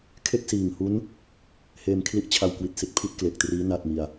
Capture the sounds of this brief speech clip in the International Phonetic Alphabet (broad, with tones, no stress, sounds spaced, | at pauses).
kʰ e˥˩ k̚ s iː˨˩ ŋ h u˦˥ n | h eː˧ m kʰ l i˥˩ ʔ t͡ɕʰ a˧ w k w i˨˩ t̚ s i˦˥ t̚ pʰ i˥˩ t̚ k l e˨˩ k̚ t r iː˦˥ n a˥˩ t̚ m i˧ a̯